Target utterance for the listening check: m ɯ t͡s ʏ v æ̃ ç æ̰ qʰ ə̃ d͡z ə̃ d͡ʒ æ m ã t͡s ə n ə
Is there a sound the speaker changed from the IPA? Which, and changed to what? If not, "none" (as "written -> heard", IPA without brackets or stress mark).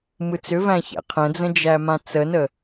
none